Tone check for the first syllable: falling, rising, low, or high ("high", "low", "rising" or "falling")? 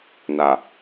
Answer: low